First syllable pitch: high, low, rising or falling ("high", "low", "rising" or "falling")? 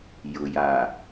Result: low